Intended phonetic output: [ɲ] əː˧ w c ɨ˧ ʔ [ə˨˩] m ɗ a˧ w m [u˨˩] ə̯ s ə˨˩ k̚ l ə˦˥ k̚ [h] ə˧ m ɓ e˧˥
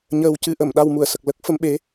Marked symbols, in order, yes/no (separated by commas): yes, no, no, no